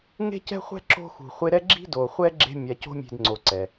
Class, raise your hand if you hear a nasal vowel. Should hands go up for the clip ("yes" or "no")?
no